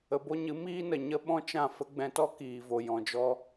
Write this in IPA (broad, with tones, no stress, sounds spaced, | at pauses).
ə˨ b o˧ ɲ ɨ˨˦ m iː˦ n ə˨ ɲ ə˦ ɓ ɔ̃˦ t͡ʃ ã˦˨ f ə˦ ɡ͡b ɛ̃˧ t ɔ˦ k iː˨ v o˨ j ɔ̃˨ d͡ʒ ɔ˧